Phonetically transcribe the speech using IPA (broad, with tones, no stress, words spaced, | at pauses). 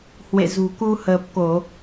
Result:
hwḛ˧˨zṳ˨˩ku˧ həː˨˩p̚ko˧˩˨